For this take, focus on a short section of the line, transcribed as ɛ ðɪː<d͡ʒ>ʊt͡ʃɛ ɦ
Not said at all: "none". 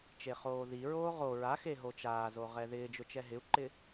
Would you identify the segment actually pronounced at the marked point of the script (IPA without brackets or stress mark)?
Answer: d͡ʒ